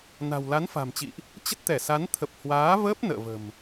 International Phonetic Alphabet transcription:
na̤˨˩wla˨˦n fa̤˨˩mt͡ɕḭ˧˨ʔ | t͡ɕə˦˥t̚t̪ɛ˧˩sa˨˦n t̪ʰə˨˩p̚ hwaː˨˦vəː˦˥p̚ nə̰ː˧˨və̤˨˩m

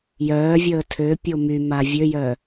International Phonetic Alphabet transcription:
jœːvʲəː tʰøpʲo my mavʲøjœ

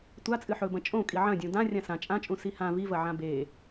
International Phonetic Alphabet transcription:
tʷat͡sʼɨ ħɵbɐ̃ t͡ʃʼõ kʼiʕɐ̃dʲũ dã rʲãsã t͡ʃʼãt͡ʃʼũ sihã vivɐ ʕãbe

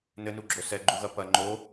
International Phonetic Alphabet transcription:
nɘnuɡ͡ǁo sɛɡ͡ǃuɣɐ pɐ ŋ͡ǃo

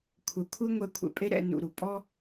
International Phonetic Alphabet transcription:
kʷʰɛ˨ kʷʰe˦ŋʷɛ˧ kʷʰɛ̰˧pʼe˦ ɾɛ̰˧nṵ˨ ɾu˨pʼɔ˦

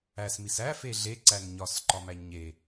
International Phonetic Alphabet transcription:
æsmis æfe ɮeǀæn ɲɒsǃɒmæ ɲe

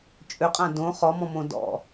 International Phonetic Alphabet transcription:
t͡ʃʼøqʼã dõ χɔmɔ̃mõ dɔ̰

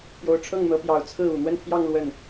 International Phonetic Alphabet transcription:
pjo˧˥ʊ̯ʈ͡ʂʰɤ˥˩ŋn̪ɤ˧˥pjɑ˨˩ʊ̯ t͡sʰɹ̩˥˩u˨˩ n̪wə˥˧npʰjɑ˥˧ŋ lwə˥˩n

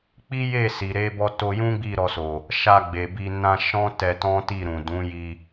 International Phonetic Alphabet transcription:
k͡pi˦je˦˨si˨ ɾe˧bɔ˧to˧jũ˦ ɡ͡bi˦˨ɾɔ˧so˨ | ʃa˧ɡ͡be˨ bi˧ nã˧ ʃɔ̃˦ tɛ˧tɔ̃˦ti˦˨ ɾũ˨dũ˨˦ji˧

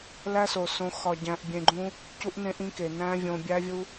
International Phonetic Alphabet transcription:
læ˦so˨sõ˧ xɒ˧ɟæ̃˧ʔbʲẽ˧ɡ͡ǃũ˦ | cu˦ʔnẽ˦ʔĩ˦ke˨ næ̃˦vʲõ˧bʲæ˦vʲu˦

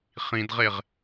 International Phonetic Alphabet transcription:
χĩdʁeʁ

